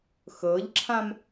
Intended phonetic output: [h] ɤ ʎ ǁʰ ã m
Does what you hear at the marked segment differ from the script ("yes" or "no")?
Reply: yes